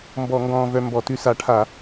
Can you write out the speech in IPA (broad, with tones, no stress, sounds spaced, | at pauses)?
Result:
m b ɔ˧˩˧ ŋ ɡ ɔ̃ː˧ v œ˧ m b ɔ˧˩˧ t ʉ˧ s a˧˩˧ ʈʰ a˧˩˧